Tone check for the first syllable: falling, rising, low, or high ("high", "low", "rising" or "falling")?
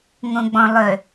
low